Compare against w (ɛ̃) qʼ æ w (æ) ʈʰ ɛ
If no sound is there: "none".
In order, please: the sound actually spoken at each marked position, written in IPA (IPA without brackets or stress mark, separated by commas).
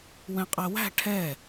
ɛ̃, æ̤